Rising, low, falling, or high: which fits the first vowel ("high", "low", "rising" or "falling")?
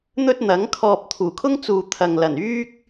high